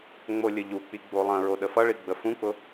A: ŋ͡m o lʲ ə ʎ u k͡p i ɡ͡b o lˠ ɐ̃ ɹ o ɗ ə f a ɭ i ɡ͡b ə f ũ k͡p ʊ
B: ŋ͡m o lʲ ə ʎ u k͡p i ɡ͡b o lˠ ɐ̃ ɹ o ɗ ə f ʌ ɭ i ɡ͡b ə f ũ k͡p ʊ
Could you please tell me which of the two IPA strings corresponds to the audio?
B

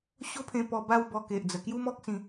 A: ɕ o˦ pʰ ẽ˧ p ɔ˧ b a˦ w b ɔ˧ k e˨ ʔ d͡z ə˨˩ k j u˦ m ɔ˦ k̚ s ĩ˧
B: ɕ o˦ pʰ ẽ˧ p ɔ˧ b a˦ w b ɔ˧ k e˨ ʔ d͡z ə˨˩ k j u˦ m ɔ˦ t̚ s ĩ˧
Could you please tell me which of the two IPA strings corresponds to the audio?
A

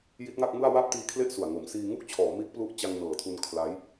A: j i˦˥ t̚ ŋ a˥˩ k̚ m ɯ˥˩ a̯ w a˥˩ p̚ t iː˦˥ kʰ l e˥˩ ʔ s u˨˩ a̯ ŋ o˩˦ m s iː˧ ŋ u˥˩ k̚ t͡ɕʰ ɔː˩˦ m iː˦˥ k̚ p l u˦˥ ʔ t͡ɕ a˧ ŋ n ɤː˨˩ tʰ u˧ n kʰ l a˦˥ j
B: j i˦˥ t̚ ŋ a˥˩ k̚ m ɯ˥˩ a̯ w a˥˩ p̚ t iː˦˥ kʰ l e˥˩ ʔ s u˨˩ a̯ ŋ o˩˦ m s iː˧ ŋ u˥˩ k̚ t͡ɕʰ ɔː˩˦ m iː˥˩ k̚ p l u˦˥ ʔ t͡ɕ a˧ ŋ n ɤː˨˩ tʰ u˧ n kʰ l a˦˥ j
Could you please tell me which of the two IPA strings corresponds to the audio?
A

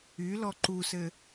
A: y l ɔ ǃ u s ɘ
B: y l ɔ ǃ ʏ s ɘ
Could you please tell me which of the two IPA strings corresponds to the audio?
A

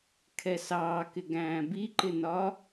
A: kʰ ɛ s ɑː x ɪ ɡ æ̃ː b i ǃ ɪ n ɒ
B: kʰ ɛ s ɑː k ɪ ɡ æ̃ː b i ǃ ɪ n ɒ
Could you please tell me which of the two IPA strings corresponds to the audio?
B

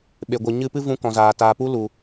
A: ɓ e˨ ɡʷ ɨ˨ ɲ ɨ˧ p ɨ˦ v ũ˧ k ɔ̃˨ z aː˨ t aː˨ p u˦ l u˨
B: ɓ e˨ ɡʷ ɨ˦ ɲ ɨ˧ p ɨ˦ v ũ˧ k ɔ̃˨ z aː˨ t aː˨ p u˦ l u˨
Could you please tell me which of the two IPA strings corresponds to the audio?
A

